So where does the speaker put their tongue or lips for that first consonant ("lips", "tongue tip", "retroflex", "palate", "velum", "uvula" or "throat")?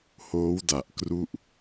throat